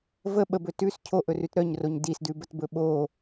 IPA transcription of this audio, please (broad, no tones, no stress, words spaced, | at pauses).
və ɓəbɵ tʉs cʰoʔɵrʉt ɾœɲroɲ disdʉbətbɵ ɓo